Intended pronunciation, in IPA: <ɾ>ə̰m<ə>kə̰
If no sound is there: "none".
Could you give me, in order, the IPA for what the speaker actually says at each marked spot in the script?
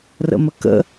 r, ə

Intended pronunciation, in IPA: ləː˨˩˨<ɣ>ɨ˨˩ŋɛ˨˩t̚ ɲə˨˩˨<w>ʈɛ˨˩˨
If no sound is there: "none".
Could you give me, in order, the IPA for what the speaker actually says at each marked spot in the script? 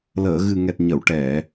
ɣ, w

